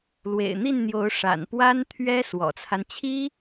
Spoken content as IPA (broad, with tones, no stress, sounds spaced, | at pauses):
l w ḛ˨˩ ɪ̯ n̪ i˥˩ n n̪ j o˧˥ ʊ̯ ʂ a̰˨˩ n p w a˥ n t̪ʰ ɥ ɛ˥ s w ɔ̰˨˩ t͡sʰ a˦ n t͡ɕʰ i˥